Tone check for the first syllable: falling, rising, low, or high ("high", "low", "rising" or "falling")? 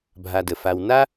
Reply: low